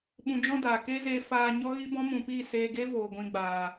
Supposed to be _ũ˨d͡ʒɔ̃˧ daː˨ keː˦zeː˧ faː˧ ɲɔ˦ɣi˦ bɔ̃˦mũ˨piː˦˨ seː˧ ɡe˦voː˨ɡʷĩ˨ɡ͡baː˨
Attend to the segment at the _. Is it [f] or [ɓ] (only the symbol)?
ɓ